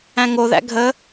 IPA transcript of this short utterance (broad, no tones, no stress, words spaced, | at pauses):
æ̃ŋoðæ̰ ɡʱə